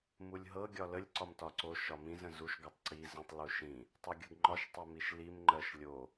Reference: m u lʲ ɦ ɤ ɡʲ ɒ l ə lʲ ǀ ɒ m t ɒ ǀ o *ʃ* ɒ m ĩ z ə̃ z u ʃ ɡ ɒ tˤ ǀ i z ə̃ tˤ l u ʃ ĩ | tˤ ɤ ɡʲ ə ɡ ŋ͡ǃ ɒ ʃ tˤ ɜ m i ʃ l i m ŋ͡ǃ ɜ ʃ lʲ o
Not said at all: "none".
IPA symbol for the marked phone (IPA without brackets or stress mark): ʃ